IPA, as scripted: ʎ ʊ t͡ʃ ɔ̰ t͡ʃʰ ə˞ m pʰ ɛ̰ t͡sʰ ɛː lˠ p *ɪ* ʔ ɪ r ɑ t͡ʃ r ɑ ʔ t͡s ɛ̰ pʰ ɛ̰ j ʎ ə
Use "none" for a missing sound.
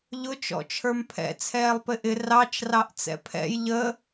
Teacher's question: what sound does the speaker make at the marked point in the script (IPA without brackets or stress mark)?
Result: ɪ